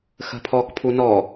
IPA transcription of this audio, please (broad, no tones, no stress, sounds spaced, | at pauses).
x ə̤ pʰ ɔ k pʰ u n ɔ